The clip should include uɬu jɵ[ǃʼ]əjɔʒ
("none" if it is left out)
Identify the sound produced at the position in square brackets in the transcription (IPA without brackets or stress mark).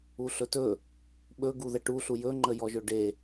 ŋ͡ǃ